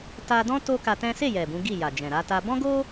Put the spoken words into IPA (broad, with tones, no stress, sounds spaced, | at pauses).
t a˧ d ɔ̃˦ t o˦ k a˧ t ɛ̃˦ s e˦˨ j ɛ˨ b ũ˨˦ ɡ i˦˨ j a˨ d͡ʒ ɛ̃˨ ɾ a˧ t a˧ b ɔ̃˦ ɡ o˦